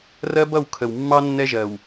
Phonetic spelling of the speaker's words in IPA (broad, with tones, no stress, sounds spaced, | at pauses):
r ɜ˦ b ʌ˦˨ w kʰ ə˨ w mː ɑ˦ nː ɛ˦ ʒ ɜ˨ w